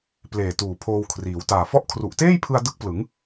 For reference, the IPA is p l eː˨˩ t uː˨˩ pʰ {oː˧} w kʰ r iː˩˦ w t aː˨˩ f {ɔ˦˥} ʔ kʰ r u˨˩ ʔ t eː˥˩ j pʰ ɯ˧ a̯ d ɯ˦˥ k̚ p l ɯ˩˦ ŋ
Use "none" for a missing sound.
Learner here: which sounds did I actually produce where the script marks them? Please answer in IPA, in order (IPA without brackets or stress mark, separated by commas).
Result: oː˧, ɔ˥˩